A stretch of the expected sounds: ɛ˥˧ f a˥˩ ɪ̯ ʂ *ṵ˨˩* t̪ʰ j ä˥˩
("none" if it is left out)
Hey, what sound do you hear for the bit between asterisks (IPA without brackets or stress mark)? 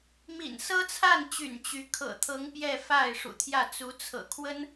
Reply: ṵ˨˩